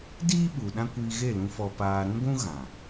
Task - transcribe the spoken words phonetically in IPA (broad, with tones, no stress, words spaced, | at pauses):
diː˦ɓu˨ ɗã˦kʷiː˧ɣe˦˨lũ˧ fɔ˨paː˨ ɾũ˦ɡʷũ˦ ɣã˨